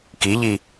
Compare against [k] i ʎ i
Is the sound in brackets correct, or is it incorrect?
correct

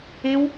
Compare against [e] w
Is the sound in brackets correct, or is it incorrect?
correct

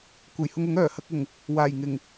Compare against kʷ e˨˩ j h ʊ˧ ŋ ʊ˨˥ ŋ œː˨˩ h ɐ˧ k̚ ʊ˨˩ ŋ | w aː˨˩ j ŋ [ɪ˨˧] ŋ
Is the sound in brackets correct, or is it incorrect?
incorrect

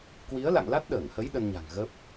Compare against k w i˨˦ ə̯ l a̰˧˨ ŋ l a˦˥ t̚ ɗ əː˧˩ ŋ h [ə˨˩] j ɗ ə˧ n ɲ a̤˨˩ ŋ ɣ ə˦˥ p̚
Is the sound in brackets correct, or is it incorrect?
incorrect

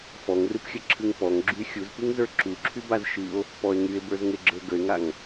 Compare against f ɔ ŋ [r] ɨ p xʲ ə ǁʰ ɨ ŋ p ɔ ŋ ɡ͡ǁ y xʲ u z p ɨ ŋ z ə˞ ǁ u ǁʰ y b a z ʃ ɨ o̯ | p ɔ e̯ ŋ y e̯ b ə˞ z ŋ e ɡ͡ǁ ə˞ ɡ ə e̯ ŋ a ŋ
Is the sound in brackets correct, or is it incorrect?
correct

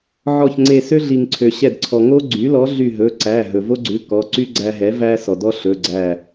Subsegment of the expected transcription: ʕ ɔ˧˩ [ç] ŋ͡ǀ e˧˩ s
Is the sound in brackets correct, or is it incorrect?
correct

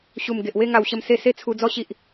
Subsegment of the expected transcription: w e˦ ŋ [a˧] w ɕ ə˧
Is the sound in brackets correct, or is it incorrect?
correct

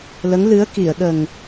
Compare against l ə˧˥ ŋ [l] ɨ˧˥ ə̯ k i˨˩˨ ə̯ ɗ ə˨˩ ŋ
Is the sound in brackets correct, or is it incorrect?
correct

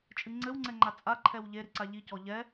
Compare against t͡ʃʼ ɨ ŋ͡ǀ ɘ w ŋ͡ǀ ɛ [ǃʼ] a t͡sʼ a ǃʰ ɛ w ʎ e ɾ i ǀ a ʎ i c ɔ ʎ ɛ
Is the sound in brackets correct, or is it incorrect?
incorrect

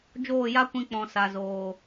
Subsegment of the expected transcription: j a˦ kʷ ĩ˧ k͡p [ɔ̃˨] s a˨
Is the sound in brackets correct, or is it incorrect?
correct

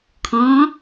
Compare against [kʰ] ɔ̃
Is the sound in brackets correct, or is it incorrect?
correct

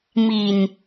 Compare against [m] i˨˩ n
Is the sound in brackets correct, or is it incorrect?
correct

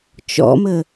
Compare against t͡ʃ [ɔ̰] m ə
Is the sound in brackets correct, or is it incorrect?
correct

